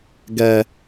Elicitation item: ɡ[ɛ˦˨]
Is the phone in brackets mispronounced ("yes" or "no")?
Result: yes